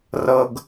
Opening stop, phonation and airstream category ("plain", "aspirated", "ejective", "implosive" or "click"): plain